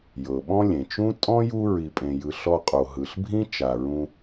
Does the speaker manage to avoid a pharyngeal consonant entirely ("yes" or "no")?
yes